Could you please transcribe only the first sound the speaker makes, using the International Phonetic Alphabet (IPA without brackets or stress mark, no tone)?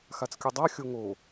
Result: x